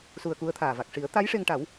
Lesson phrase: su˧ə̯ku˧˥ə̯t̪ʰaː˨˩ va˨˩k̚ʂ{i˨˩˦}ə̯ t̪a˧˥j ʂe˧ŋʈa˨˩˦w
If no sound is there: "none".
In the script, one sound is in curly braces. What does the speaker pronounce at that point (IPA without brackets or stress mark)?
i˨˩˦